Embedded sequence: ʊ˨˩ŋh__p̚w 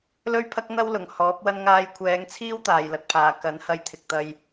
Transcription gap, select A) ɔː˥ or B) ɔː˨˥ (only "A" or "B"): B